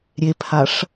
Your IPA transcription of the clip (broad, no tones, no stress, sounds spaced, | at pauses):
ɾʲ e pʰ a ʂ